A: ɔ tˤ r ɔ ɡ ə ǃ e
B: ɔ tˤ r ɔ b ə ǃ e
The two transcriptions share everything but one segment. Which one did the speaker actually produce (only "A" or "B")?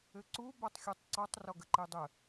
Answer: A